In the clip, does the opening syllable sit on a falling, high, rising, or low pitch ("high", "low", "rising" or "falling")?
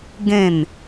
falling